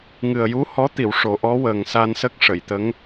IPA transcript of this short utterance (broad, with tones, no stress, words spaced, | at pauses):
ŋɨ˨˩ə̯ju˧˥hɔ˧˥t̪i˨˩˨w ʂo˨˩˦ʔɔ˧˥wəː˨˩ŋ sa˧nsə˦˥k̚ ʂə˨˩˨jt̪ə˧˥ŋ